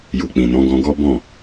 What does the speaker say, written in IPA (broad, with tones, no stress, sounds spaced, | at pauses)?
j u˨ k͡p ĩ˨ n ɔ̃˨˦ ɡ ɔ̃˧ ɡ ɔ˦ b ɔ̃˦˨